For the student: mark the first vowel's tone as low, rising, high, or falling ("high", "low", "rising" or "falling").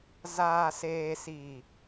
low